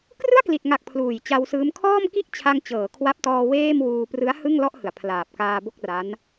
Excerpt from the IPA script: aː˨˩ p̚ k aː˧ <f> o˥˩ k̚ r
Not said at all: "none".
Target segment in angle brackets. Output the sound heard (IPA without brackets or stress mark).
b